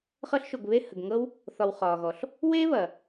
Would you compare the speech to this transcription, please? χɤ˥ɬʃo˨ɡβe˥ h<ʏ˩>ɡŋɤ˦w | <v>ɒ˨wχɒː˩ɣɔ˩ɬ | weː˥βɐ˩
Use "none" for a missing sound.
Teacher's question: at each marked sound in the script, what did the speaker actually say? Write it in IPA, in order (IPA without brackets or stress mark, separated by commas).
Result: ə˩, θ